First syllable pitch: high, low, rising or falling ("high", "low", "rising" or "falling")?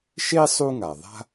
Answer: high